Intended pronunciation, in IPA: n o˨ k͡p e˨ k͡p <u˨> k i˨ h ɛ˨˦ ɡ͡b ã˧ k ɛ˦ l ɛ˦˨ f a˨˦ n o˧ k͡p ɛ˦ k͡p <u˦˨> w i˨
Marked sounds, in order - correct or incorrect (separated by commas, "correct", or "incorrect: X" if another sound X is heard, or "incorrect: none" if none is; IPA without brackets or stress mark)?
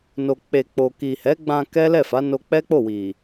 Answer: incorrect: o˨, incorrect: o˦˨